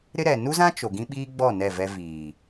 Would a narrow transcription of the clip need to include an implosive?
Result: yes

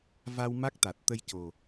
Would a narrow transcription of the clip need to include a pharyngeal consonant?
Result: no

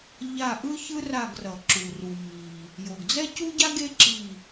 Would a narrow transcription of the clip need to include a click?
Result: yes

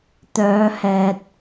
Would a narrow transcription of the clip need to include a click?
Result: no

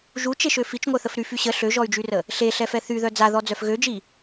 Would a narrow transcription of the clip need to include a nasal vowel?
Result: no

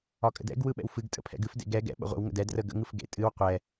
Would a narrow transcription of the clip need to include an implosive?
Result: yes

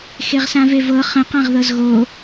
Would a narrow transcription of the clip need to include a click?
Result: no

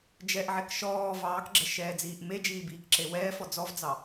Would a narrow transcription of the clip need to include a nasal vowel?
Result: no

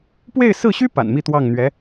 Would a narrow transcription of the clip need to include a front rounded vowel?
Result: yes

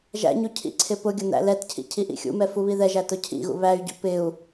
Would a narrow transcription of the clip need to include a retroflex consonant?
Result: no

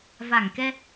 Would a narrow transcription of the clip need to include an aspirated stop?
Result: no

